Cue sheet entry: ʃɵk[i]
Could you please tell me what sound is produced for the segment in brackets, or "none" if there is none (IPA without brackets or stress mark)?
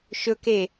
e